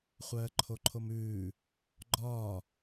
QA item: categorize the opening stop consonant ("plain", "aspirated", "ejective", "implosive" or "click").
click